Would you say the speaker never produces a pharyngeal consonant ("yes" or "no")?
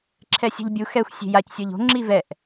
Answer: yes